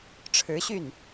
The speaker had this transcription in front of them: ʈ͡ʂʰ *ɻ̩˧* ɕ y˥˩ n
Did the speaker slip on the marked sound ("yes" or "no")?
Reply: yes